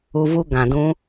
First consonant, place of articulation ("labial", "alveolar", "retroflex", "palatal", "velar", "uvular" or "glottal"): labial